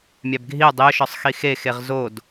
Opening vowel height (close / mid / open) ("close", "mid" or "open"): open